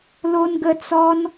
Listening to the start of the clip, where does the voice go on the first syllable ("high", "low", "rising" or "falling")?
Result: high